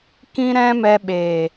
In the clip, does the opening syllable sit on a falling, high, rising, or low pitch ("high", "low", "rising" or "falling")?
high